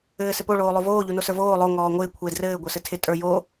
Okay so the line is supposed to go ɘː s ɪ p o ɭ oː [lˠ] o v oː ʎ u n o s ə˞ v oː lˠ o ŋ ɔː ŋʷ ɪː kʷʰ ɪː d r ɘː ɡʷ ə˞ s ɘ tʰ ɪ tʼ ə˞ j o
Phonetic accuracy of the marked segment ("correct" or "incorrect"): correct